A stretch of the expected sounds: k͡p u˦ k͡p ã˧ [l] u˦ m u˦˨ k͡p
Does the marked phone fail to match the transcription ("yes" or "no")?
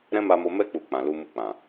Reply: no